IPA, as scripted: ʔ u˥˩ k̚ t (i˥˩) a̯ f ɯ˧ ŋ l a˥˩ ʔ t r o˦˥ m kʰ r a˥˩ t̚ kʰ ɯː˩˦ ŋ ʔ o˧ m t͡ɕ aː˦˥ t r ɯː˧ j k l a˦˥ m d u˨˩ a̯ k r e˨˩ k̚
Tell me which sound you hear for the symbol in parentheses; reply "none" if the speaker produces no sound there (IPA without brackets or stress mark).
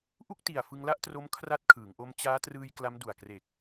i˨˩